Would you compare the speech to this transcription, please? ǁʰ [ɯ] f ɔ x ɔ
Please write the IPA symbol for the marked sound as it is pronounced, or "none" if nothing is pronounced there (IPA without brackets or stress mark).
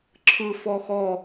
ɯ